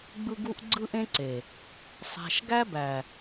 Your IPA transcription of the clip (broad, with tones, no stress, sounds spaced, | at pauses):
ɡ͡b ɯ˦ ɡ u˦ ʔ ɡ͡ǀ ɯ˦ ʔ ẽ˦ ǀ e˨ | sˤ æ̤˨ ʃ ɡ æ˦ b æ˨